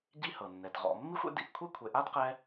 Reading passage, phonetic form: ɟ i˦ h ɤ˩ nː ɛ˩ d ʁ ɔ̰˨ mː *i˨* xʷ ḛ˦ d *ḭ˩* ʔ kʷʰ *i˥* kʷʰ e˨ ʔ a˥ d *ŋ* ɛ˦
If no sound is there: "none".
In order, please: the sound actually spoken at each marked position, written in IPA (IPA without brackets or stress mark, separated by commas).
i˥, ḭ˩, i˥, q